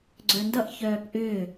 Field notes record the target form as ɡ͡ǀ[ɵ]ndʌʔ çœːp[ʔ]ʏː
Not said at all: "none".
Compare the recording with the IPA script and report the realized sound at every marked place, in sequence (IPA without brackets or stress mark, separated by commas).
œ, ʔ